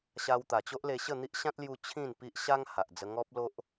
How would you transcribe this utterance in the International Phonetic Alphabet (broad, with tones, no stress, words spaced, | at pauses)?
ɕa˧wt̪a˨˩t͡ɕo˦ʔle˧ ɕə˥˧n̪i˦ʔɕã˦t̚ lju˦ t͡ɕʰĩ˥˧npi˦ʔɕa˦ŋ ha˨ʔd͡zə˧ ŋɔ˦p̚lo˦ʔ